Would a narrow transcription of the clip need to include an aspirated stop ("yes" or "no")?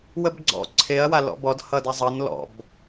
yes